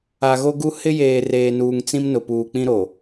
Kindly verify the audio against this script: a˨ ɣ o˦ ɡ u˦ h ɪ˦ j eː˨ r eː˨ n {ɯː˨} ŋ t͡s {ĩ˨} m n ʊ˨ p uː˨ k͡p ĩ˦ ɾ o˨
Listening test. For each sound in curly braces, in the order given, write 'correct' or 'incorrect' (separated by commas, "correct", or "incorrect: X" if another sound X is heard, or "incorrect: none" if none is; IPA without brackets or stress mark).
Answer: incorrect: uː˨, incorrect: ĩ˦